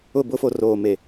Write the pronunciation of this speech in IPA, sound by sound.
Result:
ʊ˦˨ b ʊ˦ f o˨ r oː˨ m e˨

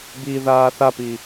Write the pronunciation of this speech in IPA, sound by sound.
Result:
b i ð aː θ a p i

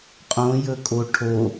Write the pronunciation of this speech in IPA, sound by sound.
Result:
qʼ õ j ɵ kʼ o ʈʰ o

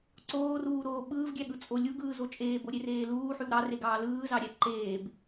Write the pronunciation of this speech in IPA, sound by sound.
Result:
ǀ oː r uː ɾ oː ɓ ɯː v ɡʲ æ ɠ ɯ t͡sʼ o lʲ u ɡ ɯː z o t͡ʃʼ eː b o ɾʲ e r eː l uː ħ y w ɾ ɑ r e ɡ ɑː l ɯː z ɑ ɾʲ æ ǃ eː b

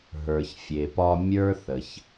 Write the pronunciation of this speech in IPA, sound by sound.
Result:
ɦ ə˞˩ ç fʲ e˩ p ɒ˧ mʲ ə˞˥ θ ə˩ ç

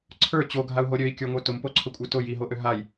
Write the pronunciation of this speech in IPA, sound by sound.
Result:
ǀʰ ə˞ t͡ɕ o ɡʱ a u̯ ɦ o ɾʲ ø i̯ kʲ ə˞ ŋʷ ə˞ t ʊ m p o ǀʰ ʊ kʷʼ ə˞ t ʊ j i ɦ o ʔ ø ɦ a j

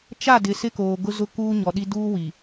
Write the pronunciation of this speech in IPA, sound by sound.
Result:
t͡ʃ a˦˨ d ɪ˨ s ɪ˦ k oː˨ ɡ ʊ˦ z ʊ˦ k uː˦ ɲ ɔ˨ ɗ i˦ d uː˦ w i˨

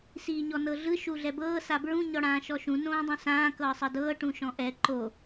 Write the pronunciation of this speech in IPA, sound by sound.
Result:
s iː ɲ ɔ n ɤ ɮ ɯ ʃ u ɮ ɛ b ɤː s a b ɹ ũ ɲ ɔ ɽ ãː ʃ ɔ ʃ ũ n õː dˤ ũ s ãː k ɤː sˤ ɤ d ɤː ʈ ũ ʃ ɔ̃ ʔ ɛ ǃ o

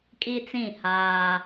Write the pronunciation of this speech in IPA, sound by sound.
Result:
kʼ i˦ t͡s ĩ˦˨ h aː˦

